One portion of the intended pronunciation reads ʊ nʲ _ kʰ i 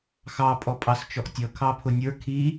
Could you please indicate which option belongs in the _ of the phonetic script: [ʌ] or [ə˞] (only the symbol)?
ə˞